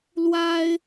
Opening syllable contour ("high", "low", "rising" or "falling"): high